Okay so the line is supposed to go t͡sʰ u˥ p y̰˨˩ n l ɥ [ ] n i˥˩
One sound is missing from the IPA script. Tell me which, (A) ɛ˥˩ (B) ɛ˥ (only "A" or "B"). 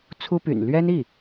B